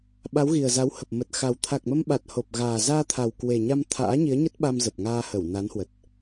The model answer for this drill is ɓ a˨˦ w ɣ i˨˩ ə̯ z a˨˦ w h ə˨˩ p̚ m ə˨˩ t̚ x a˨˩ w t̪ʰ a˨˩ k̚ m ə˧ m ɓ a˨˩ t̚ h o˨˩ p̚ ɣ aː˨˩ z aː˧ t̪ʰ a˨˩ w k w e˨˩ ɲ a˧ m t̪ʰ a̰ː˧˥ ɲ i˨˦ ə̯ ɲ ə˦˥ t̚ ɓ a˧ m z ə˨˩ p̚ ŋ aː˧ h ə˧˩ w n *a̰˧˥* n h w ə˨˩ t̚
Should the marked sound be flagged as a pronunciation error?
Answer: yes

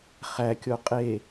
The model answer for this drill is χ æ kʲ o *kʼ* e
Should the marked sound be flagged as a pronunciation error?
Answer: yes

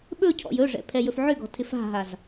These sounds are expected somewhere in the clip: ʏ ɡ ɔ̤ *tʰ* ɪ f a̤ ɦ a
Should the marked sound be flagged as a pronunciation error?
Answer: no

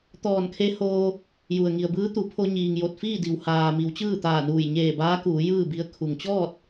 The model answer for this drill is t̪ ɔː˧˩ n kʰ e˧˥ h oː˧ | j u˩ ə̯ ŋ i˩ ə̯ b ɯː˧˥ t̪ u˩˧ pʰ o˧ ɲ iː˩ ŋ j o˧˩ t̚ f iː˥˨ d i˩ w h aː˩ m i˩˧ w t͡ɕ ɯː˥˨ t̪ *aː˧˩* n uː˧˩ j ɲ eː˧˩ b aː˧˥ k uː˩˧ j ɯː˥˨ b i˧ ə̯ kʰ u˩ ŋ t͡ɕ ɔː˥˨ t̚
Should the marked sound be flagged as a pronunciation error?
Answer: no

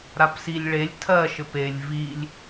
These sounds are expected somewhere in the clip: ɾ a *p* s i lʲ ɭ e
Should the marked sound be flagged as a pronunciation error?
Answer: no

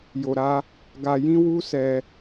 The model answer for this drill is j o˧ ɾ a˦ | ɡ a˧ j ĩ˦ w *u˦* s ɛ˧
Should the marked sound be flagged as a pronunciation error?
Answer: no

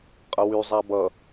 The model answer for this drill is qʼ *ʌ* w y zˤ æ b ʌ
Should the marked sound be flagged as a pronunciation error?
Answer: no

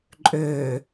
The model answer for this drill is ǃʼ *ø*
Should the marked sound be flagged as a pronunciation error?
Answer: no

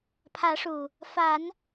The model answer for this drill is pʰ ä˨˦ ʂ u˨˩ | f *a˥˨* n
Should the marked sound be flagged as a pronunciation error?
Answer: yes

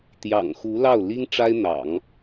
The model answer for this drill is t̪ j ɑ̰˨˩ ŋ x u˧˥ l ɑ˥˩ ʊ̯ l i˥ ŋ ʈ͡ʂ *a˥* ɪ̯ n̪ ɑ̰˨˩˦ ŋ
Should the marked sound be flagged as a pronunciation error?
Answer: no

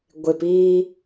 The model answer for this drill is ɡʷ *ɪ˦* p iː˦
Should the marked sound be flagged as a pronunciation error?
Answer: yes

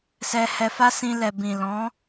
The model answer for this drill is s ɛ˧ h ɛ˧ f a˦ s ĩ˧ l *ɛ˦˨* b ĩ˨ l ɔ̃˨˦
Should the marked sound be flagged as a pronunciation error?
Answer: yes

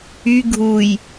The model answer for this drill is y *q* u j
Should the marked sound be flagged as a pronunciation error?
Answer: yes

